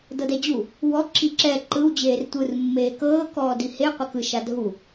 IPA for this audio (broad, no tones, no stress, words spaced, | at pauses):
dɤdɛd͡ʑu | wɔ ǁiǁɛ ǃɯw d͡ʑeːrtʷɯr mːeːkɤː kɔːdihe qʷɛkɯ ʃadʱu